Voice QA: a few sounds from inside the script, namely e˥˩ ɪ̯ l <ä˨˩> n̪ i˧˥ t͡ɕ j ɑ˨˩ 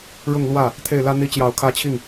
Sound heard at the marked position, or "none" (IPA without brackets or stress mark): ä˥